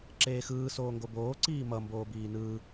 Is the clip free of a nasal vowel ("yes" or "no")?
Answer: yes